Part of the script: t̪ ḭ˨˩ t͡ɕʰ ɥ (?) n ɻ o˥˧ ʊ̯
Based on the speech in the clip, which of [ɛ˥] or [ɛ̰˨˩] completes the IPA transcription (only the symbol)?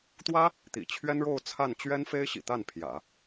ɛ˥